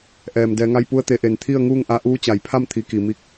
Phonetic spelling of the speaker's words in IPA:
ʔ ɛː˩ m d ɛː˩˧ ŋ a˧ j p u˧ ə̯ t̪ e˩˧ ʔ e˩ n t̪ʰ i˥˨ ə̯ ŋ uː˥˨ ŋ ʔ a˧ ʔ uː˧˥ t͡ɕ a˩ j pʰ a˥˨ m t̪ʰ i˩˧ k i˩ m i˧˥ k̚

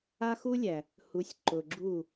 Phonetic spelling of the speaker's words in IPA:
a˦ x u˦ lʲ æ˨ | h u˨˦ sʲ ǃ ʊ˨ ɡ͡ǁ u˦˨

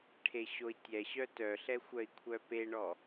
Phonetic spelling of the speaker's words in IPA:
ʈʰ e ɕ o i̯ tʲ ɛ ɕ œ t œ ɬ ɛ xʷ œ i̯ kʷʰ œ p e ɳ ɔ

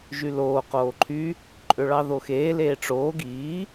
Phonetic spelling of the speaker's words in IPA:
ʒ y l oː q oː ǃʰ y | ǃʼ ø ɭ ɑ ð o x eː l eː ʈ͡ʂ oː ɡ iː

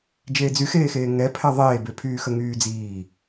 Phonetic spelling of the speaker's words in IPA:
d͡ʒ eː d͡z y x eː x eː ŋ ɛ pʰ ɛ ðˤ eː b e pʰ yː x ə ŋ yː d͡z iː

